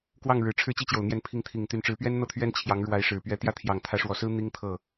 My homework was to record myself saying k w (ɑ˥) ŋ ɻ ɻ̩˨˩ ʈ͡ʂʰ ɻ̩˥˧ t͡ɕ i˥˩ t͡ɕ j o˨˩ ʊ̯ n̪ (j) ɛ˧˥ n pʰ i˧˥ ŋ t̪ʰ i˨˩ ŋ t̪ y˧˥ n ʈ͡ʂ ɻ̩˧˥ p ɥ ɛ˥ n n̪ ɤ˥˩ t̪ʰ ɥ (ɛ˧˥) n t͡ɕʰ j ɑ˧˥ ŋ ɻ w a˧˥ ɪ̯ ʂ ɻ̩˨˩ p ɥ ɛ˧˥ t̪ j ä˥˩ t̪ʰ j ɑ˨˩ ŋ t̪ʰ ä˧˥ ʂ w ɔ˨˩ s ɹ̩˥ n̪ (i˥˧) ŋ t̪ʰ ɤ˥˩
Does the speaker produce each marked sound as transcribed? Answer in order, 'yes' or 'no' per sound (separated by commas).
no, yes, no, no